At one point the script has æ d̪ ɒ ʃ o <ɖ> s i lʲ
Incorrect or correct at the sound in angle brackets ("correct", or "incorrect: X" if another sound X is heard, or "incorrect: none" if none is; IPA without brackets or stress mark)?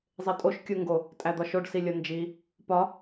correct